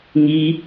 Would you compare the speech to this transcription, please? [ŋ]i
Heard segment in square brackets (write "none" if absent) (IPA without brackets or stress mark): ŋ